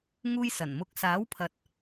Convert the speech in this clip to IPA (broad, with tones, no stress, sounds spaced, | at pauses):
ŋ uː˧ j s ɐ˨˩ n m ʊ˨˥ k̚ s aː˨˥ w pʰ ɐ˨ t̚